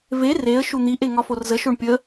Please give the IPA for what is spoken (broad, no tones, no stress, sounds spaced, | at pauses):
v e r e ə̯ ʃ u n̪ i ʔ e ŋ ɒ f o r z ə ʃ o ɳ pʲ ə